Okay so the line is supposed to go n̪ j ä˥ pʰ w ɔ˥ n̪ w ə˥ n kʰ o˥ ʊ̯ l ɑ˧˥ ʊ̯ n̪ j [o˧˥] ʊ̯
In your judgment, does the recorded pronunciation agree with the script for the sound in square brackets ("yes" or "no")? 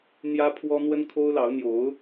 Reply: yes